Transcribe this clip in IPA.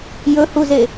j ɵ h u z e

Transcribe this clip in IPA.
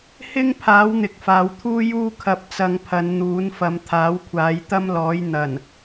h ɪ˥ ŋ pʰ aː˨˥ w n̪ ɪ˨ k̚ f aː˨ w t̪ʰ uː˥ j uː˥ kʰ ɐ˧ p̚ t͡s ɐ˧ ŋ pʰ ɐ˨˧ n n̪ uː˨˥ n f ɐ˨˧ m t̪ʰ aː˨˥ w kʷʰ aː˨˧ j t̪ ɐ˥ m l ɔː˨˥ j n̪ ɐ˨˩ n

